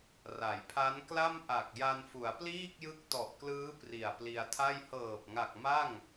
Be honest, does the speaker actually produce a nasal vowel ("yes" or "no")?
no